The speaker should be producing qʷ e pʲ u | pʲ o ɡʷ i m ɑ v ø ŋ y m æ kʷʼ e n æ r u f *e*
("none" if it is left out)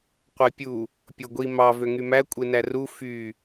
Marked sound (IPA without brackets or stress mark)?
y